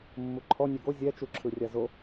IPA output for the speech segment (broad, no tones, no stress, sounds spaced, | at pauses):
mː u ǃʰ ɔ nʲ ɛ ɡ o zʲ ɛ t͡ʃ u ǁʰ ɯ rʲ a z o